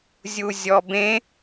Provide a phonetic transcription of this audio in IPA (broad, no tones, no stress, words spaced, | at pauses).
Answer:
zʲuzʲɔbẽ